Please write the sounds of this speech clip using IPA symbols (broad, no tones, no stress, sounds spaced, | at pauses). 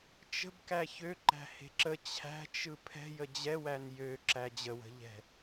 t͡ʃ ə̤ b k æ ç ø ǃ æ̤ h e̤ ǁ ə t͡ɕʰ æ̤ t͡ʃ ɯ pʰ ɛ̤ j ə d͡ʑ ɛ w æ n j ø ǁ æ d͡ʑ ə w ə̤ ʎ ɛ̤